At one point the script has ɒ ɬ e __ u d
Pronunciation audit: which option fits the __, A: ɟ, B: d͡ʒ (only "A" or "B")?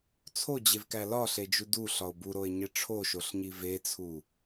B